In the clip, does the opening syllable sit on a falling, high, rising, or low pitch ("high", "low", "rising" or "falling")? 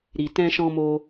low